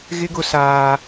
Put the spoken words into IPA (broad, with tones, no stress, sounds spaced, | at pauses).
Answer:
ɣ ɪ˦ ɡ ʊ˦ s aː˦